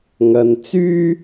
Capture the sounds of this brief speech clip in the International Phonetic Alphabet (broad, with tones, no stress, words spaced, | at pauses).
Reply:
ŋɐ˨n t͡syː˥